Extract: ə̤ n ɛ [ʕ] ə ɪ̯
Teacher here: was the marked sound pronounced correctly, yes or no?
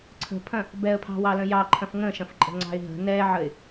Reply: yes